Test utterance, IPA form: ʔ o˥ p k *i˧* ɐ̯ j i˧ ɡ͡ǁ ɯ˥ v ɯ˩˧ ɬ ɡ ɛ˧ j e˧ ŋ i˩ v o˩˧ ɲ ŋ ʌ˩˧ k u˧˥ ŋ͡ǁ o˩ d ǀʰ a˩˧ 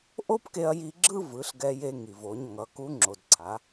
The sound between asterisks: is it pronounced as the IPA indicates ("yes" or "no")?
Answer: no